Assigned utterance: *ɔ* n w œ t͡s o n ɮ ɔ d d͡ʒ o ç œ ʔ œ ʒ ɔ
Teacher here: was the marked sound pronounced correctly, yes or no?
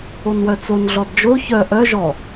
no